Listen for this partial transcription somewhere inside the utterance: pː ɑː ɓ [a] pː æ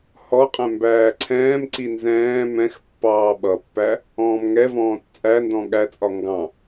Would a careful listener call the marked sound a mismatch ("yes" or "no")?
yes